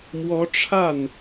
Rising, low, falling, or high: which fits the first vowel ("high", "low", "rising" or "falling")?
rising